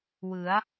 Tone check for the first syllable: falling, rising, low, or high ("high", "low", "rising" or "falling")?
rising